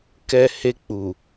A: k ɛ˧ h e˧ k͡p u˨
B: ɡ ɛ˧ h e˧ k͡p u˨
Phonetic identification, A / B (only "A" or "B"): A